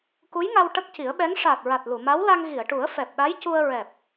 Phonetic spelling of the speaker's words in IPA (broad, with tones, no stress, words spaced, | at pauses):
ku˧˥jŋa˧w ʈə˦˥k̚ci˨˩˦ə̯ɓɛ˧˥ŋ ʂaː˨˩t̚ɹa˨˩t̚ lu˨˩˨ma˧˥wla˧ŋ ɣi˨˩˨ə̯ʈu˨˩˦ə̯ fɛ˨˩p̚ɗa˧˥jcu˧ə̯ ɹɛ˨˩p̚